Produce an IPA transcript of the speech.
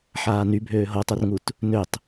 ħaːny bʱøːɦotˤørŋut | nøtˤ

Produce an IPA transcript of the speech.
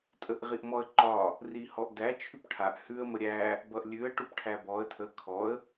tʼəʔʁiʔmɔə̯ǃɒ | rihɔʔdæ t͡ʃʰʉpʈʰaʔ hʉə̯ məɾʲæ | bʌʔlʲʉə̯ ʈupʈʰæbɔə̯ tʰə kʰɔə̯

